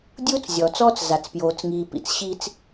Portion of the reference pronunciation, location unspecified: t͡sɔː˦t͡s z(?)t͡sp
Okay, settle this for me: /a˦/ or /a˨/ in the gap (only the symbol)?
a˨